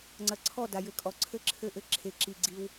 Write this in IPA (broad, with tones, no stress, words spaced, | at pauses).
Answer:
ŋ͡ǀɐ˨ǀʰɔ˦˨da˨ jɘ˨kʼɔ˨ǀʰɘ˦ǁʰɘ˦˨ ʔɘ˦ǁʰe˨ ǁi˨ɡ͡ǀi˦w